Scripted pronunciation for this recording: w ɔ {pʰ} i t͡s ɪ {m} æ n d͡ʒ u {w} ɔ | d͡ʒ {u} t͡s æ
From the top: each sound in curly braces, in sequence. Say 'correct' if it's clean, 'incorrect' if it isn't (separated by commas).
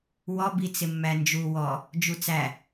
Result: incorrect, incorrect, correct, correct